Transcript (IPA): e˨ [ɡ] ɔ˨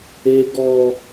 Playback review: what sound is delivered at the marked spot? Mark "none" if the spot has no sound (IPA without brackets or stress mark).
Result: ɡ